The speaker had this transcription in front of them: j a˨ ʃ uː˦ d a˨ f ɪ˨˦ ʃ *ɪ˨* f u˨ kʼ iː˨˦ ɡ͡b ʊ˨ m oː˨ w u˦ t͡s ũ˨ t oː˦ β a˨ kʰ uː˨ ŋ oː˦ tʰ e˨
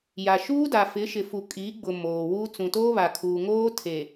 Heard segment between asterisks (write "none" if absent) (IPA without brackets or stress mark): ɪ˨